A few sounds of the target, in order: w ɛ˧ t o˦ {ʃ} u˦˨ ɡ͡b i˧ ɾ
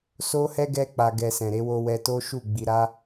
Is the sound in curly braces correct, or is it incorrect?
correct